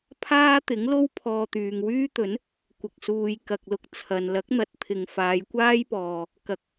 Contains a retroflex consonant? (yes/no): no